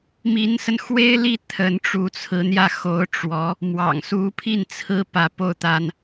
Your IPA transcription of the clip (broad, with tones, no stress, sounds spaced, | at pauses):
m i˧˥ n s ə˧ n x w e˥ ɪ̯ l i˥˩ t̪ʰ ə˧˥ n ʈ͡ʂ u˧˥ t͡sʰ ɹ̩˧˥ n̪ j ä˥˩ x o˧˥ ʊ̯ ʈ͡ʂ w ɔ˧˥ | m w ɑ̰˨˩ ŋ s u˧˥ pʰ i˥˩ n t͡sʰ ɹ̩˧˥ p ä˧˥ p o˥˩ ʊ̯ t̪ a˥ n